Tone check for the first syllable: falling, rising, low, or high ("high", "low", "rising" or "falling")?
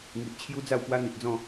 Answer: low